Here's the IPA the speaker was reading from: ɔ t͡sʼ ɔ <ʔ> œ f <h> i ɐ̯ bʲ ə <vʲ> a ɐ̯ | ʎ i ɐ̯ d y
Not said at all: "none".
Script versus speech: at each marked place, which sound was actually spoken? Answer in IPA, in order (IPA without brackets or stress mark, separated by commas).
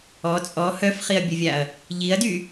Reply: h, χ, vʲ